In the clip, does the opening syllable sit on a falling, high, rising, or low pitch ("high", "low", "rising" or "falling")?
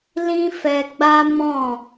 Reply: high